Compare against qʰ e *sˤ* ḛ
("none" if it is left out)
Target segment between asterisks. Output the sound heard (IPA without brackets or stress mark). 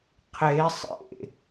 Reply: sˤ